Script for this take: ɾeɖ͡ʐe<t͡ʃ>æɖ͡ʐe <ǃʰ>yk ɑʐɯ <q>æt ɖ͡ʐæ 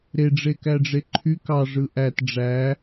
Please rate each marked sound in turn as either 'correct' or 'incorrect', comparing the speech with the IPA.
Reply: incorrect: k, correct, incorrect: ʔ

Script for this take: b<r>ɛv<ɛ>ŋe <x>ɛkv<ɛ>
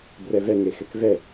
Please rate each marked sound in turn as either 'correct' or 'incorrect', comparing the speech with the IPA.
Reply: correct, correct, correct, correct

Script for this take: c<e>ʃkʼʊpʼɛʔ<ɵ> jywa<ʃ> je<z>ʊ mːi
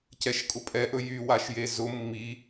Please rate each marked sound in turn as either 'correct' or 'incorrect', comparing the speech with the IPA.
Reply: incorrect: ɛ, correct, correct, correct

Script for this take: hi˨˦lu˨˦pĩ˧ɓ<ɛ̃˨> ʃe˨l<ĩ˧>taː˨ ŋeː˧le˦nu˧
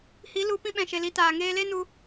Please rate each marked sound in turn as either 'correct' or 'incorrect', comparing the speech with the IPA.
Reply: correct, incorrect: i˧

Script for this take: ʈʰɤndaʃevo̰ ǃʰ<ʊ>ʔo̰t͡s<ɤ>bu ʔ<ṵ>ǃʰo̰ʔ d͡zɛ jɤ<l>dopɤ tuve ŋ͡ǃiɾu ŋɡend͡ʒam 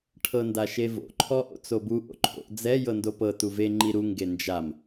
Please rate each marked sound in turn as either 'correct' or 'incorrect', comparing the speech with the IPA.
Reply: incorrect: ɔ, incorrect: o, incorrect: o̰, incorrect: n

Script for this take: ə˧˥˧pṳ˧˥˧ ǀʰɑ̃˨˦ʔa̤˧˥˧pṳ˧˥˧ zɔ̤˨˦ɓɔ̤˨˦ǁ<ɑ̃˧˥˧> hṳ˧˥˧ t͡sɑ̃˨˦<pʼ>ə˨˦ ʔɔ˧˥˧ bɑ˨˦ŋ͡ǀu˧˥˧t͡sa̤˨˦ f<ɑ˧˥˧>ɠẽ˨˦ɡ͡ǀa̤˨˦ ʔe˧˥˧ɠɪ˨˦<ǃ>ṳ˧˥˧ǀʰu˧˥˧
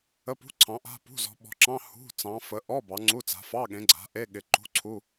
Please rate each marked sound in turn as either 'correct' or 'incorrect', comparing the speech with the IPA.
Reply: correct, incorrect: f, correct, correct

